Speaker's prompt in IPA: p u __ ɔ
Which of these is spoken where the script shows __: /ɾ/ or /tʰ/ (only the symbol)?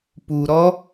ɾ